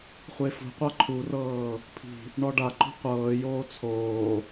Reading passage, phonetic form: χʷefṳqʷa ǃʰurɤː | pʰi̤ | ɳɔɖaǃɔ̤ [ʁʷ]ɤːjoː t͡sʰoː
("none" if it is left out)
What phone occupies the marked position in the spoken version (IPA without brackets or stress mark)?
qʷ